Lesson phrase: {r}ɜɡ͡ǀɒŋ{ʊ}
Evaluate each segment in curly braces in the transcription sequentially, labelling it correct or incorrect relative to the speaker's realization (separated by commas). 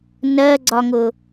incorrect, correct